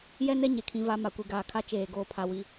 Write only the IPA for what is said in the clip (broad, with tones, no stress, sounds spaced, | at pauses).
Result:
j ɛ˦ n ɛ˦ ɲ e˨ kʰ ĩ˨˦ v a˨˦ m a˨ kʷ i˨ ɡ aː˨ kʰ a˦ t͡ʃ eː˦˨ ɡ oː˦ pʰ a˦ w i˦